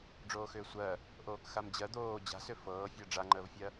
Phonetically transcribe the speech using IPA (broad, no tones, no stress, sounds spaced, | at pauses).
ɖ͡ʐ oː x ʏː sʷ ɜ | ʔ oː k x a m d͡ʑ ɜ d̪ oː d͡ʑ a̤ s ʏ f ɤː fʲ ɜ ɖ͡ʐ a ŋ͡ǃ əː v fʲ ɜ